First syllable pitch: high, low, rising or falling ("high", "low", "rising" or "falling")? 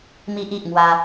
high